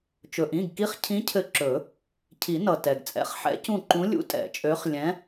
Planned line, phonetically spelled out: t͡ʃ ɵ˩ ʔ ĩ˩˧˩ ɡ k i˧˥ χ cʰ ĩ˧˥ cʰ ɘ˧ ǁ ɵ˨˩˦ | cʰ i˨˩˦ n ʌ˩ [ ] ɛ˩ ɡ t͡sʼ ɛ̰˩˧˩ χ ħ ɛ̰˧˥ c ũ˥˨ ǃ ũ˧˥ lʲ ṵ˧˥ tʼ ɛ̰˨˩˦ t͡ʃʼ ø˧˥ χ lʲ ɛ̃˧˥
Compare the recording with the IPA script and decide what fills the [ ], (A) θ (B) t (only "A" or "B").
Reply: B